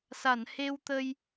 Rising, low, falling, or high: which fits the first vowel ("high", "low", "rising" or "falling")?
low